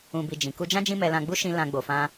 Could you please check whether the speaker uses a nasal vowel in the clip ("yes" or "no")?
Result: yes